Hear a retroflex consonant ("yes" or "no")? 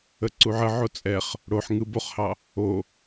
yes